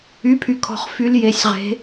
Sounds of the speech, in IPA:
y˩˧˩ pʰ y˩ kʰ ɔ̤˩ χ f y˨˦ l j e˩˧˩ sʲ ʁ e̤˨˦

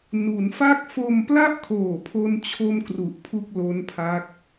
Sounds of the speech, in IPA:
n u˩˦ n f a˥˩ k̚ f o˧ m p l a˥˩ ʔ kʰ oː˨˩ pʰ o˥˩ n t͡ɕʰ o˥˩ m k r u˨˩ ʔ pʰ u˥˩ k̚ l o˦˥ n pʰ a˦˥ k̚

